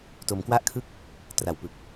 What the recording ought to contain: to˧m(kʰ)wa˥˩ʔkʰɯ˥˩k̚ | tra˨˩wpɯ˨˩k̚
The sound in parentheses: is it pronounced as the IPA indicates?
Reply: no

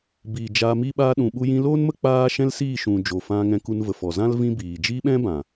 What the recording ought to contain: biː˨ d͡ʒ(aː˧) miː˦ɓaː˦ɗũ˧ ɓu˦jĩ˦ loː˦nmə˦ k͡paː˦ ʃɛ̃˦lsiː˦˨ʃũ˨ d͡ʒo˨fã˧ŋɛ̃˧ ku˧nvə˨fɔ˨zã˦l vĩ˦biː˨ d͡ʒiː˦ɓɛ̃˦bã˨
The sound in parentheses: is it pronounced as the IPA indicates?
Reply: yes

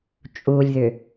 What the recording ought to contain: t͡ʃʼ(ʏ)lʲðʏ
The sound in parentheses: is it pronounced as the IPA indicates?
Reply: no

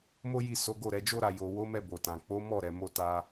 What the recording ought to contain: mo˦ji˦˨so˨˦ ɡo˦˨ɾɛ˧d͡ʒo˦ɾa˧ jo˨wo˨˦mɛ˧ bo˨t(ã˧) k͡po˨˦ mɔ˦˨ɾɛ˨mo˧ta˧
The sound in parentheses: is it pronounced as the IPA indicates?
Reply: no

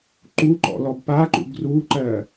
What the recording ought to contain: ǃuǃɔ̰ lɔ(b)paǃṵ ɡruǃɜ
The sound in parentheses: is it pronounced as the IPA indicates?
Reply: yes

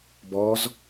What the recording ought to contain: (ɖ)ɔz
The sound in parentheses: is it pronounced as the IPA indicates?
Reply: no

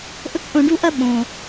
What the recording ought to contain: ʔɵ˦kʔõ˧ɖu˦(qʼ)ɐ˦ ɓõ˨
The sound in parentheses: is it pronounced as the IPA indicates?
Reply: no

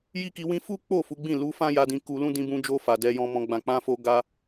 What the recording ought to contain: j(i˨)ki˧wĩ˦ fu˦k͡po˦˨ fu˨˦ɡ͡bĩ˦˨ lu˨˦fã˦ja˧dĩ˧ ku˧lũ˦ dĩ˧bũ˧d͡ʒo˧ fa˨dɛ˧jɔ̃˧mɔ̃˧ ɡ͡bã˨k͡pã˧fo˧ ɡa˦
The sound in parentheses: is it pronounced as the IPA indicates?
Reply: no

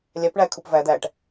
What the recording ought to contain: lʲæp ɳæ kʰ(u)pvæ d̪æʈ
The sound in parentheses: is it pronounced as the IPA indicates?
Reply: yes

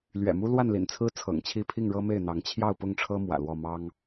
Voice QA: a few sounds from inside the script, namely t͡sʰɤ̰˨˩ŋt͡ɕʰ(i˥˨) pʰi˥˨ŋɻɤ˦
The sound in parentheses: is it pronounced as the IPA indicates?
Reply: yes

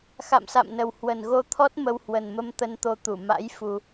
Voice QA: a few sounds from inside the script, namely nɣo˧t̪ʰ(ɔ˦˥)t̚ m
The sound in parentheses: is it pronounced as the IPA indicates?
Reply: yes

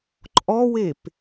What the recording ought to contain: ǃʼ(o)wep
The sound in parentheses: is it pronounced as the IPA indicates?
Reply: no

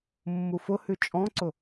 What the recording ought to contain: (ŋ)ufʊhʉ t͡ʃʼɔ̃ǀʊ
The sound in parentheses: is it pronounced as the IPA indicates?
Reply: no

